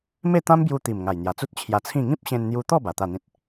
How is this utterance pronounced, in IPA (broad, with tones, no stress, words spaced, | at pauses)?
me˥˧t̪ã˦mbju˧t̪i˨˩m ŋa˨˩jn̪ja˨˩t͡su˦t̚ t͡ɕʰja˧t͡sʰĩ˥˧ ŋĩ˦p̚ɕẽ˧nn̪ju˧t̪ɔ˥˧ ba˨˩t̪a˥˧n̪ĩ˦t̚